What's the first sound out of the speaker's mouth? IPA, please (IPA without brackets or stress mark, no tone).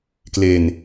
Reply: k